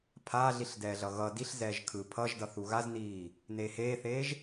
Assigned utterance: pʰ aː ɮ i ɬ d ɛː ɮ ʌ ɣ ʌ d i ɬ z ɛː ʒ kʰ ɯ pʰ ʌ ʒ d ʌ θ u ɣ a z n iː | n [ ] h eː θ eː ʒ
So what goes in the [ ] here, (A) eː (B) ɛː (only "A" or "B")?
A